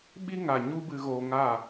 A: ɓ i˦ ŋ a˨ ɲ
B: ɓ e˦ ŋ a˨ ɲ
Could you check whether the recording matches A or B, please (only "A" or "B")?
A